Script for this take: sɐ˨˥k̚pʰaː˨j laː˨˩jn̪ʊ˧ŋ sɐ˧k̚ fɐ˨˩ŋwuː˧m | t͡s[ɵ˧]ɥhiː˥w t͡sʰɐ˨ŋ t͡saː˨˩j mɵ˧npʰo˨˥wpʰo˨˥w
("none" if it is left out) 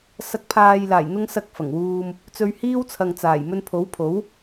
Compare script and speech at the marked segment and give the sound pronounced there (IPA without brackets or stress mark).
ɵ˧